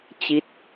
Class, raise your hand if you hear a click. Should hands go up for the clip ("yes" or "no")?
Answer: no